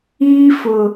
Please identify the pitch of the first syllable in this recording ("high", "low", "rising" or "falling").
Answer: high